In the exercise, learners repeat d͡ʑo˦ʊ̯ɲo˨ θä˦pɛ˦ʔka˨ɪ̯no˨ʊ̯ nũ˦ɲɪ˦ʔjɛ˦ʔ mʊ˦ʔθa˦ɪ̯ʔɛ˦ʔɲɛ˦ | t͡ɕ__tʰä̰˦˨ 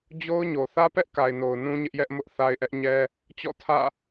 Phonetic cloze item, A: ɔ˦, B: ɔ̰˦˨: B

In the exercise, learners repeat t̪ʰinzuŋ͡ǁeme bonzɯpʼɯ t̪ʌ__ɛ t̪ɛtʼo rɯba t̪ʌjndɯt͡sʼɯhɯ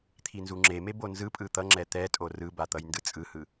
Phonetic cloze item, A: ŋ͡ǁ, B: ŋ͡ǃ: A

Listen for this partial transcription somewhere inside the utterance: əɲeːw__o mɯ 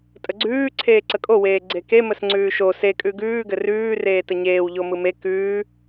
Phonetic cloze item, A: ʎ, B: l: A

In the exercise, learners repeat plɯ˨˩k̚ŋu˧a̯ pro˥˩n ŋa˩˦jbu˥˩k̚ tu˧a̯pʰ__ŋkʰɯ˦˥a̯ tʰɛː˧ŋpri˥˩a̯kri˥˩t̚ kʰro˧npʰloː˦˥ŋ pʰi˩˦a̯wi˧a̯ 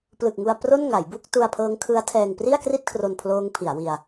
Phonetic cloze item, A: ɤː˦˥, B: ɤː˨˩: A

